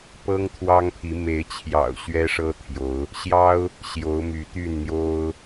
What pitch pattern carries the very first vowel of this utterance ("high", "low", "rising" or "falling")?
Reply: high